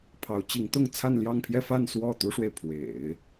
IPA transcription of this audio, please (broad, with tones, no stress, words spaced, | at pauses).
pʰɑ˧˥ʊ̯t͡ɕi˧˥ŋt̪ʊ˥˧ŋ t͡sʰa˥˧nljɑ˥˧ŋpʰjɛ˥˧ fa˥˧n swɔ˥˩t̪u˥ʂwe˨ɪ̯ pʰwḛ˨˩˦ɪ̯